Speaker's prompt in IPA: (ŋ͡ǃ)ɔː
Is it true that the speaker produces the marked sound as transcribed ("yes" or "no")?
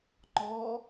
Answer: yes